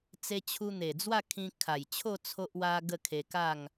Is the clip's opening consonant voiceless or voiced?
voiceless